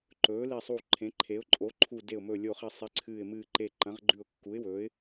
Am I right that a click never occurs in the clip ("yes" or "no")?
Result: no